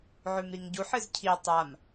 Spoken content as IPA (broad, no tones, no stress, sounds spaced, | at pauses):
ʕ ʉ m ɾ i ŋ ɟ u ħ ɨ z cʰ i tˤ a m